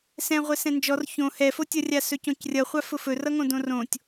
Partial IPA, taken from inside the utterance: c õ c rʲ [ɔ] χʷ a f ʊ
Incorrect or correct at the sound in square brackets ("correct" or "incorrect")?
incorrect